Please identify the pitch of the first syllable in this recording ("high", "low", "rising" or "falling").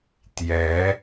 rising